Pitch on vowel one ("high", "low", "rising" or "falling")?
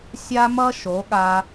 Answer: high